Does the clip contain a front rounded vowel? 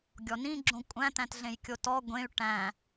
yes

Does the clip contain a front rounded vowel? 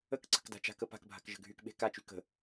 yes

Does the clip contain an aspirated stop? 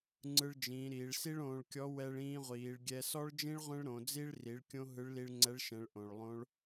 no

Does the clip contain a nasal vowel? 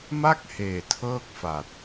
no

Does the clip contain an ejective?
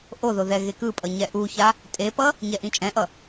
yes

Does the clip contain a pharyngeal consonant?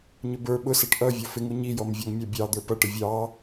no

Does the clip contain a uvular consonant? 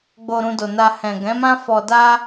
no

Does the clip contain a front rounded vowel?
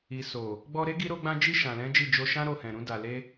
no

